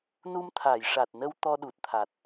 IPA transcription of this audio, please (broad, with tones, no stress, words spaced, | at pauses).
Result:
nu˧mt̪ʰa˨˩˨jʂa˨˩t̚nə˧w t̪ɔ˧ɗu˨˩t̚t̪ʰa˨˩t̚